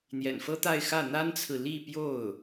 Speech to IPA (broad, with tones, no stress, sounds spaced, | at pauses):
n̪ j ɛ̰˨˩ n f ɤ˥ t̪ a˥˧ ɪ̯ x ä˥˩ n̪ a˥ n t͡sʰ ɹ̩˨ l i˥˧ p j o˥˩ ʊ̯